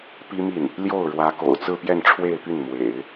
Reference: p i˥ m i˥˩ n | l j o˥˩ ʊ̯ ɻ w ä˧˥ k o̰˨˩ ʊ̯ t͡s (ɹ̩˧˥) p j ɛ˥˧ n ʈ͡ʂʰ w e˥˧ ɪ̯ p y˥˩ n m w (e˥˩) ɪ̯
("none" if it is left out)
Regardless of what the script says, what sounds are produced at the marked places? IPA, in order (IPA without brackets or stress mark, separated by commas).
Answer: ɹ̩˥˧, ḛ˨˩˦